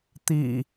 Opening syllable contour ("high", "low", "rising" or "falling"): low